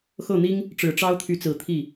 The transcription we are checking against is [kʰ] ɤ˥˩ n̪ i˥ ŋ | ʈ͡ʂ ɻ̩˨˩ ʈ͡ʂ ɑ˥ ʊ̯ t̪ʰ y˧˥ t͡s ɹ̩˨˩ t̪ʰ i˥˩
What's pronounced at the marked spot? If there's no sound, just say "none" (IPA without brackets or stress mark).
x